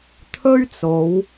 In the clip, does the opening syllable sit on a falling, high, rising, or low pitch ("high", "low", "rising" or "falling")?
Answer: high